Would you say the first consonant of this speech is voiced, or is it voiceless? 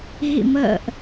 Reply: voiced